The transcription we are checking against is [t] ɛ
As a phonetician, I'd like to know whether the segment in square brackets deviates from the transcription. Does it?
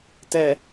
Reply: no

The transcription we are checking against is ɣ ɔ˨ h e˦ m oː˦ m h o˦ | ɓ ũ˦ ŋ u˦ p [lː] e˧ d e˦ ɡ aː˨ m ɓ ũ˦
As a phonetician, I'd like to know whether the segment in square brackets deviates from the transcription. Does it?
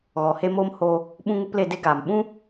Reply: yes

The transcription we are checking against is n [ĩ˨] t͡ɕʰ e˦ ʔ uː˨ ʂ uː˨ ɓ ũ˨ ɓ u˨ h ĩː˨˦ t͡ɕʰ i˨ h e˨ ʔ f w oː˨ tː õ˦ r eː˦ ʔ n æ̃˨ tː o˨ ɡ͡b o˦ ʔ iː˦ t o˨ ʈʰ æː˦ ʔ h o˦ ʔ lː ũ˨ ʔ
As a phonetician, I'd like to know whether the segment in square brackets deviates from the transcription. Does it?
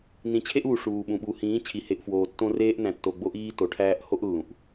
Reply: no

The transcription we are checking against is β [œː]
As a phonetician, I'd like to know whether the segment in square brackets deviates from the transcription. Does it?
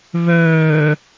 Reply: no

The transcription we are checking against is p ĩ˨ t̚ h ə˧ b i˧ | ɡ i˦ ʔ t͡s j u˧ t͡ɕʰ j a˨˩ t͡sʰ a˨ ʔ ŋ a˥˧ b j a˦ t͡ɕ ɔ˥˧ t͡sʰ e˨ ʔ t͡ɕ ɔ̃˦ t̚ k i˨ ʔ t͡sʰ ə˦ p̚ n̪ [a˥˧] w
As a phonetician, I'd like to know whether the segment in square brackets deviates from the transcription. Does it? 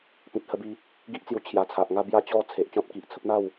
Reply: no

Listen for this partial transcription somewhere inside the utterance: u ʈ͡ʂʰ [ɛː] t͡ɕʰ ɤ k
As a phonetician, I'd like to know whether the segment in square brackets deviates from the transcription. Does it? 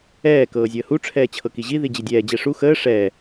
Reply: no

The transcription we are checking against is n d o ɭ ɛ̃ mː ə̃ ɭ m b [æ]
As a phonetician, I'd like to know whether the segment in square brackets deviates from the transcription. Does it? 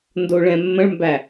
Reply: no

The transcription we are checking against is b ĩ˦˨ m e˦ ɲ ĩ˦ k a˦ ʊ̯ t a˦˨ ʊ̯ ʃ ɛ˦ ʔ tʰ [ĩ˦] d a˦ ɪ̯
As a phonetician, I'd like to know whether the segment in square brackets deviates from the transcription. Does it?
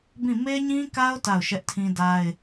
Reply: no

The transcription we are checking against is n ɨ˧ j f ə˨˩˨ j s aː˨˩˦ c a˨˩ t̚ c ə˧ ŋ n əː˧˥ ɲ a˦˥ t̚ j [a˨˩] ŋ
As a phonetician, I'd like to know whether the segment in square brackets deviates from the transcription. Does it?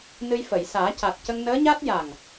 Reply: no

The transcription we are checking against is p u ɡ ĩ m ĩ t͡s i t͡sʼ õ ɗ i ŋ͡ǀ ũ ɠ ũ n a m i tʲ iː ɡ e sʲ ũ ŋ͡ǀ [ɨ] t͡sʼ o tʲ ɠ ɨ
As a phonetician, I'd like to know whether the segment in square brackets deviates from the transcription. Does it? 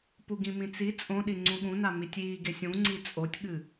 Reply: yes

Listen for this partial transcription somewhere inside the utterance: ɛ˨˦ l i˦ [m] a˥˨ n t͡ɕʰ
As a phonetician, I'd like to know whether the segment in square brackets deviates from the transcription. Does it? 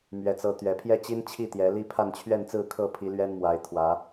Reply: yes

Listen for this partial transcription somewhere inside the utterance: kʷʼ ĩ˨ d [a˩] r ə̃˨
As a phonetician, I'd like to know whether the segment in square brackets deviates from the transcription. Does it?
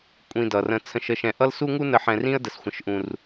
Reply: yes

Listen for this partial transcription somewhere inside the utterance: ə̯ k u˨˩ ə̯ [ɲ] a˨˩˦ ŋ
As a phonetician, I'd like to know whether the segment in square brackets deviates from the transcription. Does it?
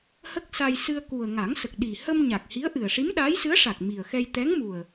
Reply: yes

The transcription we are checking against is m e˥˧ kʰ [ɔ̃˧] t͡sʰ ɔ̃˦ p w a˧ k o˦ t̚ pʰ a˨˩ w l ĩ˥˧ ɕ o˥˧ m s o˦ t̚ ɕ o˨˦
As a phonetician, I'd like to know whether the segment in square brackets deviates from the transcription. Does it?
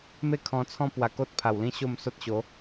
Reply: no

